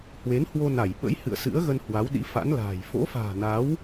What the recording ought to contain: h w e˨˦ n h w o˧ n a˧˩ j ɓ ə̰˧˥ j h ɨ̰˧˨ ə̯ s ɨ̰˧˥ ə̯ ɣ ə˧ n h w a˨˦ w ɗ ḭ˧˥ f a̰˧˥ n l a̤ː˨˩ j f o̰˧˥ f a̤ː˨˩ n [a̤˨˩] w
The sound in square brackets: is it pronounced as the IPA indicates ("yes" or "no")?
no